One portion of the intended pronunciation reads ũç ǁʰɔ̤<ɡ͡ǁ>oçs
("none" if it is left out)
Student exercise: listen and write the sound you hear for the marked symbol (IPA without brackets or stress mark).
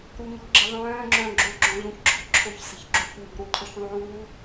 ǁʰ